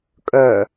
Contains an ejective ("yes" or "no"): yes